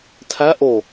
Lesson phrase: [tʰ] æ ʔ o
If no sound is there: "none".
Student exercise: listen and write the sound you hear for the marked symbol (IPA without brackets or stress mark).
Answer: tʰ